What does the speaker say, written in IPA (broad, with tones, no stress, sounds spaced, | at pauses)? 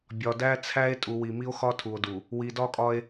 bʲ ɒ˨ d æ˦ t͡sʰ æ˦ e̯ tʼ u˨ w i˨ m i˦ o̯ x ɒ˦ tʰ u˨ o̯ d u˨ | w i˨ d ɒ˦ kʼ ɒ˦ e̯